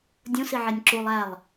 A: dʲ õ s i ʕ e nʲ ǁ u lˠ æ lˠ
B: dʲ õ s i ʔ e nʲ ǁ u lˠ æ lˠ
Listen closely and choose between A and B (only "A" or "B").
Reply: A